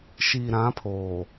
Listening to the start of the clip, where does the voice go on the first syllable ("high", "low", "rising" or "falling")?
low